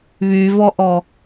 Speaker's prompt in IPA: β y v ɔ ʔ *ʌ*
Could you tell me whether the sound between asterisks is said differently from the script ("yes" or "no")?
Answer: yes